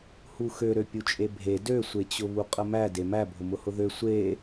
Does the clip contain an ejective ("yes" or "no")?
yes